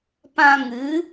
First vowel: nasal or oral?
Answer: nasal